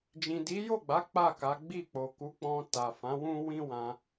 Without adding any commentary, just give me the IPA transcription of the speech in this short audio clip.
d͡ʒĩ˨di˨˦jo˦˨ɡ͡ba˨˦ k͡pa˦˨ka˨˦ɡ͡bi˦˨ k͡po˨ku˨˦k͡pɔ̃˧ ta˨fã˨˦wũ˦ wĩ˦wã˧

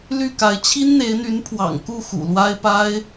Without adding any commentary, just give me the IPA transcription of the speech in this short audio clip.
ly˥˨ka˨˦ɪ̯ t͡ɕʰi˦nn̪e˨˦ɪ̯n̪y˨˦n pʰwɑ̰˨˩ŋku˥˨ xṵ˨˩ lwa˦ɪ̯pa˦ɪ̯

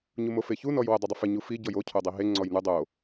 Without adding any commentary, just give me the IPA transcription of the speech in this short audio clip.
ɲumofeçu nɔjwɪ dˤɪdˤɪfɪ ɲufi ɟɔjo cʰodˤiɦe ŋ͡ǀɔjnu dˤo

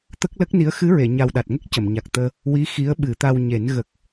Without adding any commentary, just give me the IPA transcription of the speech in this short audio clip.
t̪ə˦˥k̚lə˦˥k̚ni˧˥ə̯ xɨ˧˥ɹe˨˩˨ɲa˨˩w ɗa˨˩t̚ŋə˦˥k̚ cə˨˩˨mɲa˨˩k̚t̪əː˧ | wi˧˥ xi˧˥ə̯ɓɨ˨˩˦t̪a˧wɲe˨˩˦n ɣə˨˩k̚

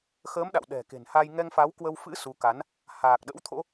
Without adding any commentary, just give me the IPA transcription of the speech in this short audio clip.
xəː˨˦m ɗa̰˧˨wɗɛ̤˨˩ke̤˨˩nha˧j ŋɛ˧ŋfa˨˦wkwə˧wfɨ̰˧˥ su˨˦ka˨˦n | haː˨˩k̚ɗə̰˧˥wt̪ʰo̰˧˥

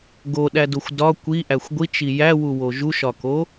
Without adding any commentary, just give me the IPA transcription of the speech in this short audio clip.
ɡoɗædoxʷ dɒ kʷiʔæxʷ ɡʷit͡ʃi jæwuwo ʒuʃɒko

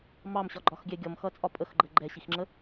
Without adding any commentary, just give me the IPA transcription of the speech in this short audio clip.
mɑmɕɒ ɡ͡ǃɒxɡʲɛ ɡʲʌmxʌt͡sʼɒ pʼəxɡ͡ǃə ɡ͡ǃɛɕixŋ͡ǁə

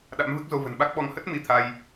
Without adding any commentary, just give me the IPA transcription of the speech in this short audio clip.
ɗa̰˧˥mvɨ˦˥k̚zo˧ və̤˨˩nɓa˦˥k̚ɓɔ˧ŋ hə˦˥t̚ mi˧t̪ʰa˧j

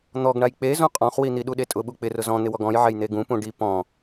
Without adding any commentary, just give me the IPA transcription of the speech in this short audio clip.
n̪ɔɡɳaj k͡pe zũqʼɔ̃χwin̪i ɗuɗetʼʊɓu k͡pɪ rʊzɔ̃ n̪ɪwɔɡɔ̃jʕɛj n̪eɡũpũ ɖi pɔ̃

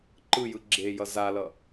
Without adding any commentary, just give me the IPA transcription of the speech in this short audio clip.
ǃɯjɯ ɡ͡ǁejʌ zalʌ

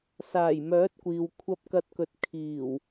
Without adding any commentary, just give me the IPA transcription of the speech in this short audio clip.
saː˨˩jmœː˨˥t̚kʷiː˨w kʷʰɐ˧p̚kɐ˧t̚kɵ˨˥t̚ kʰiː˨˩w

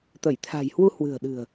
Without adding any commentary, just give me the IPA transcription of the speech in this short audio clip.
t̪ə˧˩jt̪ʰa̤˨˩jhwu˧ hwɨ̤˨˩ə̯ɗɨ̤˨˩ə̯

